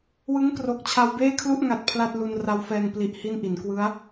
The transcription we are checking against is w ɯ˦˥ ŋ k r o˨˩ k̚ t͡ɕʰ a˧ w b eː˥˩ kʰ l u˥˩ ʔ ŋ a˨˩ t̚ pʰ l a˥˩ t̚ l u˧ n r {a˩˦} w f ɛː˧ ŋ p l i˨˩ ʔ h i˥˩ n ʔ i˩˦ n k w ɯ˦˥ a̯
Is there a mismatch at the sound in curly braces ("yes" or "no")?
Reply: yes